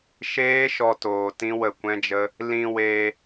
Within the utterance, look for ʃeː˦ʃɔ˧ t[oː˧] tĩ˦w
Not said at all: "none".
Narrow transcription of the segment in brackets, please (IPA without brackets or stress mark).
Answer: oː˧